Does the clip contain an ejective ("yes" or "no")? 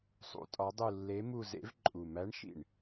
yes